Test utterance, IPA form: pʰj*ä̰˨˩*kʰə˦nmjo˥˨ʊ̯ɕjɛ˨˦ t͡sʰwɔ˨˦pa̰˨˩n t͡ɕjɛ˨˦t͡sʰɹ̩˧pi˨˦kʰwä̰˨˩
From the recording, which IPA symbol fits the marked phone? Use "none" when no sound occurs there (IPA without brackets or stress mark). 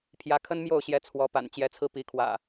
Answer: ä˨˦